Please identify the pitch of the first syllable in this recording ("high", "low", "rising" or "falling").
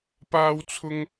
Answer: high